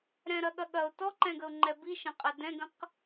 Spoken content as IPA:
ɾ ɛ̃ ɾ ɐ ɠ ɐ ɠ ɐ ʊ̯ t ɔ ǃ ɛ̃ ɡ ə ʊ̯ ŋ͡ǃ ɛ b i ʃ ɐ̃ qʼ ɛ d ɛ̃ ɡ ə̃ q

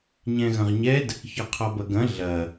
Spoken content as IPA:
ɲ ɛ̃ ɣ ɐ̃ ʁ ɲ ɛ d | ç ɔ qʰ ɔ b ɐ ɡ ɐ̃ ɮ ɐ

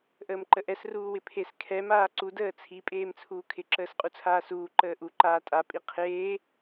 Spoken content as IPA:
ʔ əː m ǃ ə ʔ ɛ s r uː w ɪ pʰ e s kʰ ɛ m aː ǀ u d əː t͡sʰ i pʼ eː m t͡sʰ uː kʰ ɪ ǁ əː s qʼ u t͡sʰ aː s uː ǃ əː ʔ u ǃ aː tʼ a pʼ i qʰ eː

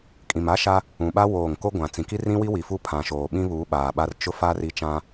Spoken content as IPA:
kʼ ĩ˨ m a˦ ʃ a˦ | ũ˨ ɓ a˦ w oː˦˨ ŋ k o˦ ɡʷ ã˨ t͡s ĩ˨ k i˦ r ĩ˦ w i˦ w i˨ f u˦˨ pʰ ã˨ ʃ oː˨ ɓ ĩ˦ β uː˨˦ ɓ aː˨ ɓ a˦ r t͡ʃ ʊ˦ f a˦ r i˦ t͡ʃ ã˦

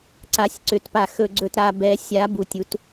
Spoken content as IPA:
ǀ a˨˩˦ sʲ ǀ ʏ˨˩˦ t p a˨ x ɵ˨ ɡ͡ǀ ɵ˨ t ɾ a˨ b ɛ˨˩˦ sʲ a˨˩˦ b u˨ tʲ u˨˩˦ t

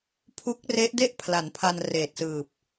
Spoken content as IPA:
pʰ u˦˥ k̚ r e˦˥ ʔ d e˥˩ ʔ pʰ l a˩˦ n pʰ a˧ n r eː˨˩ t̚ s ɯː˨˩ p̚

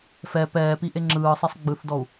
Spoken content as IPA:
f ɛ p ɛː p i ʔ e ŋ͡ǁ ɯː sˤ i sˤ ɡ͡b ɯ θ d ɔ u̯

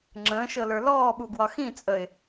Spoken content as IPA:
ŋ͡ǁ ə̃ː ʃ ɤ l ə˞ l ɔː ɓ u ɡ w ɒ x ĩ t͡sʼ ə ɪ̯

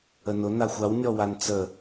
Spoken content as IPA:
ə n ʊ n a xʷ a w nʲ ɔ w a n t͡s ə

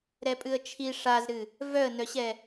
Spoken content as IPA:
ɾ ɛ pʼ ɨ ə̯ t͡ʃʰ i ʂ a z ɾ ɨ | v œ ə̯ n œ ɕ ɛ

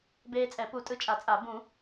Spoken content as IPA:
b eː˧ t͡sʼ ɛ˨˩˦ p u˨˩˦ tʼ ɯ˧ t͡ʃʼ a˨˩˦ t͡sʼ a˨˩˦ b ũ˨˩˦

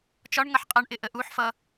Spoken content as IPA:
t͡ʃ ɒ ɳ ŋ ʌ ħ qʼ ʌ ɳ ʔ ɪ ʔ ə ʔ u ħ f ʌ

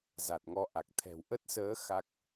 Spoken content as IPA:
z a˨˩ t̚ ŋ ɔ˧ ʔ a˨˩ k̚ t̪ʰ ɛ̤˨˩ w ʔ ə˦˥ t̚ s əː˨˦ x a˦˥ k̚

